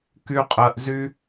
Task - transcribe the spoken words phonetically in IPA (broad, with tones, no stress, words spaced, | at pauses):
ky˦ qʼɜ˧ʔzy˦